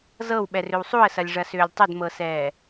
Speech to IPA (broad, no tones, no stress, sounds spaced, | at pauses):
z ɤ w ɓ ɛ r ʏ w sˤ u ə̯ s ɐ lʲ ʐ ɐ s ʏː lʲ tˤ ʏ d m ɤ s ɛː